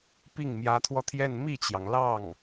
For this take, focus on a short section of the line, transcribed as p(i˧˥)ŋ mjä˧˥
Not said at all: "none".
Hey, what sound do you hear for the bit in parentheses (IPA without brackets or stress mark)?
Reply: i˥˩